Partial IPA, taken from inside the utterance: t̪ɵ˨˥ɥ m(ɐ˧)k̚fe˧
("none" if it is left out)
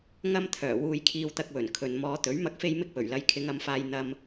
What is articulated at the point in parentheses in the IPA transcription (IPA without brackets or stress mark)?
ɐ˧